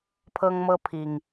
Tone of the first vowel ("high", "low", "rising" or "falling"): high